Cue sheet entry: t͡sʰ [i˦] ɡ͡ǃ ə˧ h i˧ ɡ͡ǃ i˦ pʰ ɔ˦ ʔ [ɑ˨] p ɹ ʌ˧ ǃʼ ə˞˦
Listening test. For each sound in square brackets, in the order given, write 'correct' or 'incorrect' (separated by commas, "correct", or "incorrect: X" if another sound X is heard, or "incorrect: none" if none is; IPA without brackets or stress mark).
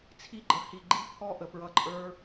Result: correct, incorrect: ə˨